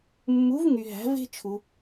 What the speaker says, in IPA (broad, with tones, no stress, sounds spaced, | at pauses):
mː u˩˧ v ŋ y˩ ɦ æ̤˩˧ v e̤˧ t͡ʃʰ u˩